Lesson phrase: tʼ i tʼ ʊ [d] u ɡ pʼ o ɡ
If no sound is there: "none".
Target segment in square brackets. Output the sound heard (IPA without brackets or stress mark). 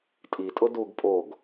d